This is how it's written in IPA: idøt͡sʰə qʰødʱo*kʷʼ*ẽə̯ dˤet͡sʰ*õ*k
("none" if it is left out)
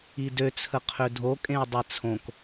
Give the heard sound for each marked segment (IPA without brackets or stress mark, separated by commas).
kʼ, õ